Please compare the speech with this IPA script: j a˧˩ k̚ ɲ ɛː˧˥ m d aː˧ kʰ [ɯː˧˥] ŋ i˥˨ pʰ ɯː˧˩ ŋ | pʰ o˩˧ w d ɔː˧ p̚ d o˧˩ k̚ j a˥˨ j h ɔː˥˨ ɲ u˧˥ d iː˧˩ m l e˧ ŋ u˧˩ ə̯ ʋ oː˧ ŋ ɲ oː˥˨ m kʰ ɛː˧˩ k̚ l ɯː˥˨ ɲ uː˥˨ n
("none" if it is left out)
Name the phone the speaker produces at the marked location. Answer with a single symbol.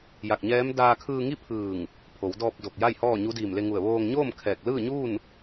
ɯː˧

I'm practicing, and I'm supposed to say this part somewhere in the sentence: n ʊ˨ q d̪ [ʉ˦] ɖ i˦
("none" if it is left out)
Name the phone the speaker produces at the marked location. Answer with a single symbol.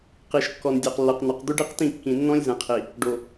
ʉ˦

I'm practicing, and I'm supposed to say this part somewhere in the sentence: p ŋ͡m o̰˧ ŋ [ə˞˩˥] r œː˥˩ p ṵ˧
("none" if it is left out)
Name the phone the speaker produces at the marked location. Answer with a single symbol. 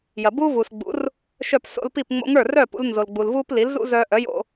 ə˞˥˩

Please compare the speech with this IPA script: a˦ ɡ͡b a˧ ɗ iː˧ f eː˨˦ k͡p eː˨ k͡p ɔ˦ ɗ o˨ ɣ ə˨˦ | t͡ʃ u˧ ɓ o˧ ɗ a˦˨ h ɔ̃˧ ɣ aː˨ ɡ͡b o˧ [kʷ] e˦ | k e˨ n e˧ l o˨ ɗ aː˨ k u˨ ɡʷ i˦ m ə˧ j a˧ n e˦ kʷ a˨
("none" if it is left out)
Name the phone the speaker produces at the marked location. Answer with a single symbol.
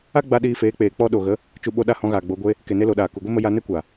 ɡʷ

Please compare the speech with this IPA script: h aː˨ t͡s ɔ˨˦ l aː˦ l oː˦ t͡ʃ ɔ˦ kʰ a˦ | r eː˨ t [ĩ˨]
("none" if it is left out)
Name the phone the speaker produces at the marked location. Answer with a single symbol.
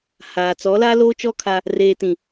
ĩ˨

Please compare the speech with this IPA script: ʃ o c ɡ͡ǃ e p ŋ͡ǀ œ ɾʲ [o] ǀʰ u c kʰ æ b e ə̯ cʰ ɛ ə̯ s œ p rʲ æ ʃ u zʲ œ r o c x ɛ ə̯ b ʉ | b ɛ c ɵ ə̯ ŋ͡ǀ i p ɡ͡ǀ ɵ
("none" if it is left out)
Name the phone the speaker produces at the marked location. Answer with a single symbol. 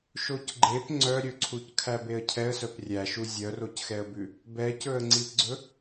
ɵ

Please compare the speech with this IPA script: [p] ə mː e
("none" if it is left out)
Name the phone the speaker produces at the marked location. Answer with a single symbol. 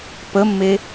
p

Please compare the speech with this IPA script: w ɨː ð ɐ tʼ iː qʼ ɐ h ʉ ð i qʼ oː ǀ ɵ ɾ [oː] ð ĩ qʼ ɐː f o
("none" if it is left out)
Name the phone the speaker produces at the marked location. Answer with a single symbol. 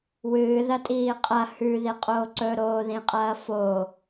oː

